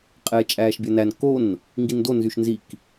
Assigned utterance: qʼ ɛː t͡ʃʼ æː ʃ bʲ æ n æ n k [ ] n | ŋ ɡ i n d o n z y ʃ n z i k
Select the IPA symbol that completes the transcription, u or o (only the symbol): o